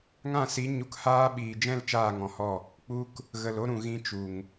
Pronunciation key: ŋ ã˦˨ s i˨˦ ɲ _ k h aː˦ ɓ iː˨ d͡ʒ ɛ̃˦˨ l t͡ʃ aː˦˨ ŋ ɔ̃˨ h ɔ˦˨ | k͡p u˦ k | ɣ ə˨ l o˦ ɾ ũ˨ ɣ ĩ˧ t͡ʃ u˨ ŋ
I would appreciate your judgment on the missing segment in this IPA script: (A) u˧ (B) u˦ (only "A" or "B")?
A